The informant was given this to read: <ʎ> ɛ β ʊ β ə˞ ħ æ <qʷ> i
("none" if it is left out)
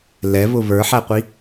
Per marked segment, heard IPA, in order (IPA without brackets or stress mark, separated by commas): l, qʷ